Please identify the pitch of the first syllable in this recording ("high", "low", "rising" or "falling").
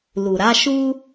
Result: low